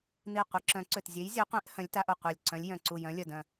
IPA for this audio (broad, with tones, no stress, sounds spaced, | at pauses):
n̪ i˧˩ qʷ i˨˥ ǁ œ̃˨˥ ǀ ø˧˩ t zʲ e˨˥ j zʲ œ˨˥ qʷ ẽ˨˥ ʔ h œ̃˨˥ lʲ t a˨˥ ʔ o˧˩ qʷ a˧˩ lʲ ǀ œ̃˨˥ lʲ j œ̃˧˩ ǀ u˧˩ j œ̃˨˥ lʲ œ˧˩ d œ̃˧˩